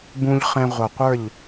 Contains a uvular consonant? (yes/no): yes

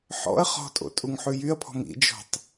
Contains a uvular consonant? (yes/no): yes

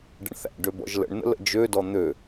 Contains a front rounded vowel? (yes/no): yes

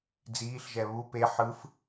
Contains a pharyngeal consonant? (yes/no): yes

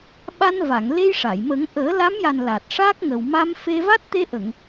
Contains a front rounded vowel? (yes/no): no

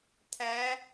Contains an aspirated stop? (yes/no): yes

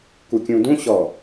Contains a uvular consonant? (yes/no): no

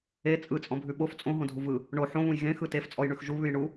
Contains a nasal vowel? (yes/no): yes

